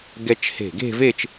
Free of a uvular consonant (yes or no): yes